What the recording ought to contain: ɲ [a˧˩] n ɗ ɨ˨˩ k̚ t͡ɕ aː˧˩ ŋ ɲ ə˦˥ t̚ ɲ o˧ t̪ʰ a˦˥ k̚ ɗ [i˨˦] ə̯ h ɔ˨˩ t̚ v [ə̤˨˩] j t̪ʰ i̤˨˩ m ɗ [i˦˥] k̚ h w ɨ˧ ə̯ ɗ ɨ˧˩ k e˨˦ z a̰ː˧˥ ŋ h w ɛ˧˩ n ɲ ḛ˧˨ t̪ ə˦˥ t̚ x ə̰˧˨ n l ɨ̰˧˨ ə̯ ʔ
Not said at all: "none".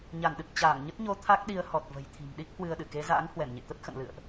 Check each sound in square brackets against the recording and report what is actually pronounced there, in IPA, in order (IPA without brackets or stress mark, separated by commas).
a˧˩, i˨˦, ə̤˨˩, i˦˥